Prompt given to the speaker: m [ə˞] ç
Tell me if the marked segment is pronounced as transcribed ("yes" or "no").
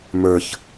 yes